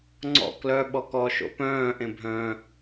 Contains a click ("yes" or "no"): yes